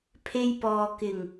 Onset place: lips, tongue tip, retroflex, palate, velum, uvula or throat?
lips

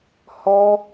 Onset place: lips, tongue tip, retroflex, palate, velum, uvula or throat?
throat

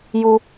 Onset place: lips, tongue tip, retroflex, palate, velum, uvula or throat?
palate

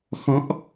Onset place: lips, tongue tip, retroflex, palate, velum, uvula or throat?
velum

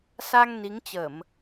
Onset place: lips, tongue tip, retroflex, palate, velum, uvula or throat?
tongue tip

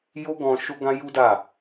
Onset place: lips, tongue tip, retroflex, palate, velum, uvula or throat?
palate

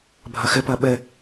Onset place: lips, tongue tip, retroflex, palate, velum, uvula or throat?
lips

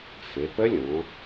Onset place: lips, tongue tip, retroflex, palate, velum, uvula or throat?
lips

